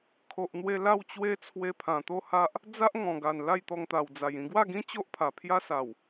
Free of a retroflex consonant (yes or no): yes